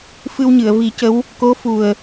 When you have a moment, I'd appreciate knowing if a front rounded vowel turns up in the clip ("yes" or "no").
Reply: no